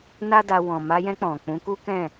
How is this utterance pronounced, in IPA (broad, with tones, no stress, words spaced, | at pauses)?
na˦da˧ wɔ̃˨ma˧jɛ̃˧ k͡pɔ̃˨k͡pũ˨˦ku˦kɛ̃˦˨